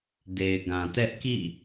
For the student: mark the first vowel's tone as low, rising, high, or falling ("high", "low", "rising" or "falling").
low